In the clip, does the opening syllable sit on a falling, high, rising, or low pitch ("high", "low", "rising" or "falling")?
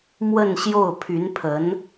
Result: falling